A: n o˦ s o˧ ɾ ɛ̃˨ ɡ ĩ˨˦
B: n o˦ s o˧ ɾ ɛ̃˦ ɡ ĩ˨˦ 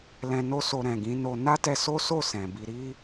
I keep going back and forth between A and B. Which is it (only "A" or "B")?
A